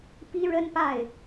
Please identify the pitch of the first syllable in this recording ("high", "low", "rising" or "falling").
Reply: high